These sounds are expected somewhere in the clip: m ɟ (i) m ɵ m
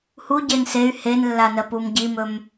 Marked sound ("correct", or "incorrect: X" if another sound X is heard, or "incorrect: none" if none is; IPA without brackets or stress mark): correct